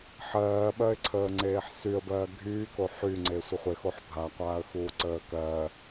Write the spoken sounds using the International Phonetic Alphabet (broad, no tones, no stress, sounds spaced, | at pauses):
ħ ɜː ɓ ɜ ɪ̯ ǀʰ əː ŋ͡ǀ eː ħ s y ə̯ b ɜː ɡʱ yː k o ħ y ŋ͡ǀ e sʷ ə χʷ e x o ħ bʱ a qʷ aː ə̯ x uː ǀ əː k ɜː